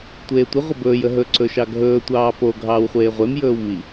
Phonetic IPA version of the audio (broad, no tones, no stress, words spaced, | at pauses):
tʷeːtʷə ʁʷəbɵːj əɦɵ ǀɵʃɑɡʱɵː tʷɑːpo ɡʱɑːwχʷeːʁʷem jɵːwmi